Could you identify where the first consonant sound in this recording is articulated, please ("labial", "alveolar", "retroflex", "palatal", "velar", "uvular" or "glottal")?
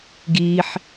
velar